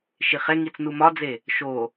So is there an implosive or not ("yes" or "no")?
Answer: no